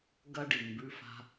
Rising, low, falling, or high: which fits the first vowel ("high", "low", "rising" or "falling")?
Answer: high